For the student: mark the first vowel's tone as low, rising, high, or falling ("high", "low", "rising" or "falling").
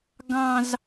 high